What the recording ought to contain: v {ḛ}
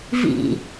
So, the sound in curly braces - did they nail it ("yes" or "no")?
no